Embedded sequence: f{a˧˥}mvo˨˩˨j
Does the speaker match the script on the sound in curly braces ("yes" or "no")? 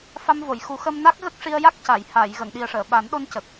no